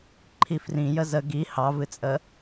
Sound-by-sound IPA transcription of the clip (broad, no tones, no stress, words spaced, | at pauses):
ǃʰifrĩ jəzə ɡi hɑvɨt͡sʼə